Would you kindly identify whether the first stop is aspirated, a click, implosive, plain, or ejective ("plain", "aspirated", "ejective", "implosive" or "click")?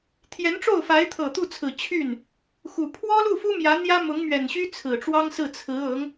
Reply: aspirated